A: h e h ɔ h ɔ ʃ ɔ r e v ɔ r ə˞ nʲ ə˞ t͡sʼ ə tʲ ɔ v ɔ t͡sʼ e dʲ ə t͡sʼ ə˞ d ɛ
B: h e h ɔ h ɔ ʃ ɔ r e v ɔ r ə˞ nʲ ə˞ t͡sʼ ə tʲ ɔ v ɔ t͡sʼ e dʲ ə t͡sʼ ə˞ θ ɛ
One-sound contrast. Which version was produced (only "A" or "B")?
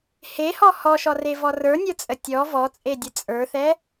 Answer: B